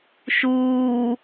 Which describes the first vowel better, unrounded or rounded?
rounded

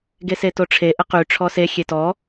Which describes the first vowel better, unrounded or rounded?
unrounded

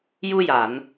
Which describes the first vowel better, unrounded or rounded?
rounded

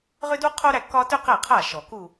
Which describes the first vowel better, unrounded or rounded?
rounded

